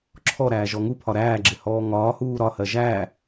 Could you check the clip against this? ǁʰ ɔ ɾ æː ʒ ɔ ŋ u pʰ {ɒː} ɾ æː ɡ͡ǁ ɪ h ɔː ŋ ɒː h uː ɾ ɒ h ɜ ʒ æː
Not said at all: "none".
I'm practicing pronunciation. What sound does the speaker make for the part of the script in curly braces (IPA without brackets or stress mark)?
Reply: ɒ